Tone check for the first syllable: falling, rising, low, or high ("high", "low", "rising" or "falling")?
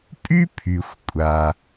high